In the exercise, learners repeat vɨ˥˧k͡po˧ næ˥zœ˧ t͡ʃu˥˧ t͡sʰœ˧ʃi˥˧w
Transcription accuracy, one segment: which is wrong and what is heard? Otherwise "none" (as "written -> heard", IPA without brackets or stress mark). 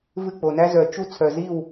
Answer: ʃ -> z